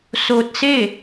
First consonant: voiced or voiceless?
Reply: voiceless